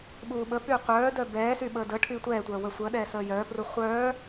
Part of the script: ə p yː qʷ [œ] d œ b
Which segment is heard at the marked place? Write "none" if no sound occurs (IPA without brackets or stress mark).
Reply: œː